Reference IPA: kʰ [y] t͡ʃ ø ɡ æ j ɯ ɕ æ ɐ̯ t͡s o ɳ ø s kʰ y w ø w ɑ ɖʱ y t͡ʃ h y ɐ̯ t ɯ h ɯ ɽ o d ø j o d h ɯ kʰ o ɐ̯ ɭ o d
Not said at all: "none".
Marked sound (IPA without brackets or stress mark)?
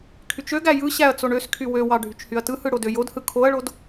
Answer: y